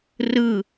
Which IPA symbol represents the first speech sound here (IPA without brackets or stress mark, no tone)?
r